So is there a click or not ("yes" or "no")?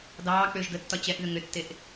no